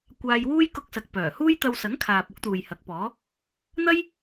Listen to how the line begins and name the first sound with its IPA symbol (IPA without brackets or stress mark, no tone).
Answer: kʷ